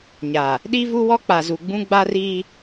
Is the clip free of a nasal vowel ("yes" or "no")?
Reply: no